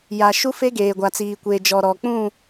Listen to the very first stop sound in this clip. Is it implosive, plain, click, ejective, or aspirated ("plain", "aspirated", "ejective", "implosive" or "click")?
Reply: plain